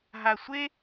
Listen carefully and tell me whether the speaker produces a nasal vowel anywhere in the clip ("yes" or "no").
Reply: no